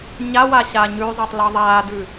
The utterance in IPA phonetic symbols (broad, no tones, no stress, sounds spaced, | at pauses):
ɲ a w a ɕ aː ɲ ʉ zˤ ɑ tˤ l ɑ ðˤ aː d ʉ